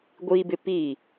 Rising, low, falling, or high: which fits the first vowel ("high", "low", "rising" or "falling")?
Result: high